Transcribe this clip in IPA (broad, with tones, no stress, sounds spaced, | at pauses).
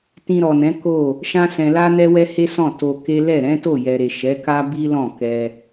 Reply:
t ĩ˧ ɾ ɔ˨ n ɛ̃˨˦ k o˦˨ | ʃ ã˦ s ɛ̃˧ l a˦ n ɛ˦ w ɛ˦ h e˦ s ɔ̃˦˨ t o˧ k e˦ l ɛ˦˨ ɾ ɛ̃˨˦ t o˦˨ j ɛ˨ ɾ e˨ ʃ ɛ˨˦ k a˦ b i˦ l ɔ̃˦˨ k ɛ˧